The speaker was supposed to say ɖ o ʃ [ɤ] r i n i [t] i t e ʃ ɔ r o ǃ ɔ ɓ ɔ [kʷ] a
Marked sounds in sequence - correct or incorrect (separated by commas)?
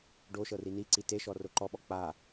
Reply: correct, incorrect, incorrect